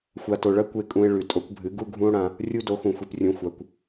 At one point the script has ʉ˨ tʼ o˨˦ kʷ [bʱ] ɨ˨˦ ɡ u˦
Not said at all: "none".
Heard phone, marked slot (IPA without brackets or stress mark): bʱ